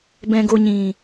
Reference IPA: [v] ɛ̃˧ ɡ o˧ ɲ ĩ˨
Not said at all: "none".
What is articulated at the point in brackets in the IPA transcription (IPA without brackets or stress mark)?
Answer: b